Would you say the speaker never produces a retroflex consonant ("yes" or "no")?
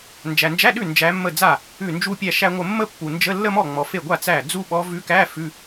yes